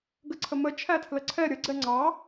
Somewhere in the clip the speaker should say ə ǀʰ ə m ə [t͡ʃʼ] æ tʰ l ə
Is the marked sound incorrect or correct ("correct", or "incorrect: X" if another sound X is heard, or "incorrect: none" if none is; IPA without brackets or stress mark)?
incorrect: t͡ʃʰ